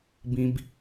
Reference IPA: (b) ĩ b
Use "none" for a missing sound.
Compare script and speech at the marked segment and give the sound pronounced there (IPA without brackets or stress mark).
b